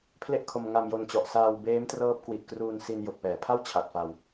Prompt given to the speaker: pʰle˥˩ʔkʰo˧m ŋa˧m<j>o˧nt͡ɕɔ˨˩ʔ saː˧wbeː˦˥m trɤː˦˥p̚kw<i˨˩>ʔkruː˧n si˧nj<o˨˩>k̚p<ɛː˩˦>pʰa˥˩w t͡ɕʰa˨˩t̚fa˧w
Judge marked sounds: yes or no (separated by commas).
yes, yes, yes, yes